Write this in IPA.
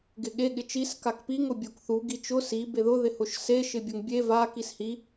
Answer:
ɡɪɠe ɠɪt͡ʃis kakpiŋ ʊbʲokθu ɡit͡ʃʊ si beðʊ ðɪhʊʃse ʃɪbʲʊŋbʲe va kishi

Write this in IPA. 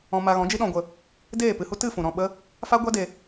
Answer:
ɔ̃˧ma˧ ɣɔ̃˨˦d͡ʒi˦ɗɔ̃˧ɡʷə˧ | deː˦˨pɨ˧hu˦ tɨ˦˨fũ˨ɾɔ̃˦˨ɓə˦ | fa˦ɡʷa˦de˧

